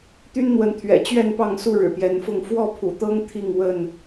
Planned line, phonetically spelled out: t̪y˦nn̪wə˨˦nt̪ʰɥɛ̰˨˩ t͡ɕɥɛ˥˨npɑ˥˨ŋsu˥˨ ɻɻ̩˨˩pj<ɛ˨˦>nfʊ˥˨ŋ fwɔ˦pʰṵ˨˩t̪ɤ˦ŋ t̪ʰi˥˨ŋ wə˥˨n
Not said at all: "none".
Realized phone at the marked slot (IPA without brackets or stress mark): ɛ˨˦